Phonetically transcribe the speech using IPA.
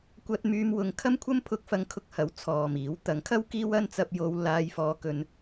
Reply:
kʷɐ˧t̚ myː˧mwʊ˨˧ŋ kʰɐ˥mkʷʰɐ˥m pʰʊ˧k̚fɐ˧ŋkʰʊ˧k̚hɐ˨˥w t͡sʰɔː˨miː˨˥w t̪ɐ˨˥ŋkʰɐ˥w kiː˥wɐ˥n t͡sɐ˧p̚jo˧w laː˧jfɔː˧kɵ˧n

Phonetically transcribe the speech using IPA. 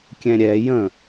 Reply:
kʲɛ̃ɾʲɛ jə̃

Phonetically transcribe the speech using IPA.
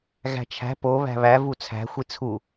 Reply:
ɣæ̤t͡ʃʰæ̤ poβæ̤ βæ vut͡sʰæ̤ xʷit͡sʰu

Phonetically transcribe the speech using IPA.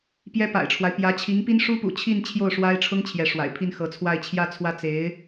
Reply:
pjɛ˥pa̰˨˩ɪ̯ʈ͡ʂʰwa˦ɪ̯ pjä˧˥t͡ɕʰi˧˥ŋpi˥n ʂu˥pṵ˨˩t͡ɕʰi˥˧n t͡ɕʰjo˥˩ʊ̯ʂwa˥ɪ̯ʈ͡ʂʰʊ˥ŋ t͡ɕʰjɛ˧˥ʂwa̰˨˩ɪ̯ pʰi˥˩nxɤ˧˥t͡sʰwa˥˧ɪ̯ t͡ɕʰjä˥˧t͡sʰwä˥˩ t͡se˧˥ɪ̯

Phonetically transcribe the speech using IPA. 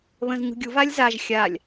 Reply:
βə̃z ɲṳɡʲu valʲzaʒ xʲalʲ

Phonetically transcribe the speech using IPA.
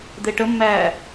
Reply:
d̪eʈəmːæː

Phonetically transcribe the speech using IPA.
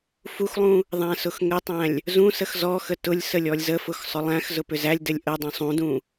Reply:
fuxlˠũ | ðˤæ̃sʊxŋɘtˤæ̃lʲ | zũ səxzɔxə tʊlʲ səlʲɔlʲzəfʊx sˤʊlˠæ̃xzʊ pʏzælʲdɘlʲ ʔə dˤũsˤũdũ

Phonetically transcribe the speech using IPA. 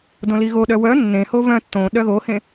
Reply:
dõliɣoɗœ wœ nːẽho vœ̃ tːõ ɗœɣohẽ

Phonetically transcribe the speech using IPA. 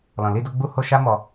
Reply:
lɔ̃˨li˧do˧ ɡ͡bu˧ho˧ ʃa˦mɔ˧

